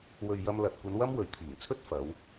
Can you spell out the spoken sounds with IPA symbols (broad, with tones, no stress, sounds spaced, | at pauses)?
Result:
w ɵ˨ ɥ j ɐ˧ m l ɐ˨ t̚ kʷ ɐ˨˧ n w ɐ˥ m w ɵ˨ ɥ t̪ʰ iː˨˩ ŋ t͡sʰ ɵ˥ t̚ f ɐ˨˧ w